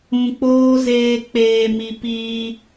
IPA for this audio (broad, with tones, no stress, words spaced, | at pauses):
ũ˧k͡poː˦zeː˧ k͡peː˨mi˨ piː˧